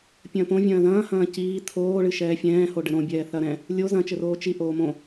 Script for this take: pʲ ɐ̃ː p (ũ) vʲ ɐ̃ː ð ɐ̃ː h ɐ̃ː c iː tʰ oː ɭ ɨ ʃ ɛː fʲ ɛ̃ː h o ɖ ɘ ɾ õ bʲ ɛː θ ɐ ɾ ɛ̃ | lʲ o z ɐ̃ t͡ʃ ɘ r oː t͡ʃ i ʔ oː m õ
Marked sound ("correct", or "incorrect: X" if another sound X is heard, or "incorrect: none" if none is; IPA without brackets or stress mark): incorrect: õ